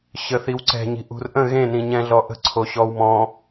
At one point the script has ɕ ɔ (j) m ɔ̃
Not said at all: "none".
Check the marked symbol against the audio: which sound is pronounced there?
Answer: w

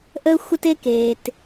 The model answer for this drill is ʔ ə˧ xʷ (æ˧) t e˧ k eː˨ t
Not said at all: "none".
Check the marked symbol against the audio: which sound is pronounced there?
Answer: ə˧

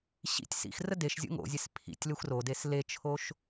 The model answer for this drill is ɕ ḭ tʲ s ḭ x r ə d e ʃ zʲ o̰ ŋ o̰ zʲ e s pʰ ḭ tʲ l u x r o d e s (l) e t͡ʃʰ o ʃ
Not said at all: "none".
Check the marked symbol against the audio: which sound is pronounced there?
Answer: l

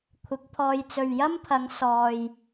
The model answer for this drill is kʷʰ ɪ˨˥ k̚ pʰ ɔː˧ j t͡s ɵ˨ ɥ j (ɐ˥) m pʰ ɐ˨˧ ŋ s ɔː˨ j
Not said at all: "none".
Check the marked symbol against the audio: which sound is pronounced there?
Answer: ɐ˥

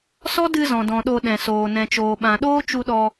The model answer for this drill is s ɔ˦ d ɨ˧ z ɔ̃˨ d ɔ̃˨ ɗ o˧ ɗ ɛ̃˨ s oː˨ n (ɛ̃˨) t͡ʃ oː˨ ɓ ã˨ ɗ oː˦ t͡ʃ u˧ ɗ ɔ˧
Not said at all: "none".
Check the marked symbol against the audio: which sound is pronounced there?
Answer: ɛ̃˨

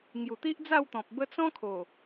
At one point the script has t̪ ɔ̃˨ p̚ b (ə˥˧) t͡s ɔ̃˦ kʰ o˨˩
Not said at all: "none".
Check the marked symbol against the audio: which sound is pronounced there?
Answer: ə˧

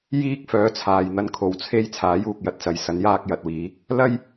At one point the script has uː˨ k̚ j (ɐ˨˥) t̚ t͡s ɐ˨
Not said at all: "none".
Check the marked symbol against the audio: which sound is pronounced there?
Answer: ɐ˨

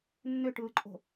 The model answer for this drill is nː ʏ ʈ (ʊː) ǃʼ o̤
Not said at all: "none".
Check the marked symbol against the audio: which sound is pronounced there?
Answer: ɯː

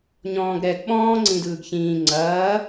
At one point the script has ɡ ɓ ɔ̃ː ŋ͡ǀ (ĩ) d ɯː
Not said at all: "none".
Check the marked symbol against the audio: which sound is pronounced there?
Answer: ĩ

